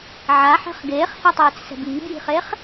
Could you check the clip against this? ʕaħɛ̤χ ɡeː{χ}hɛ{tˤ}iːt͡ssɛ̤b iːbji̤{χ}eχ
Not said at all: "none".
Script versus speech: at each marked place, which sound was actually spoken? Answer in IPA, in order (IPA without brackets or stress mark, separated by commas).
χ, tˤ, χ